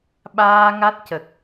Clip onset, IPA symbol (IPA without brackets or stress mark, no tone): ɓ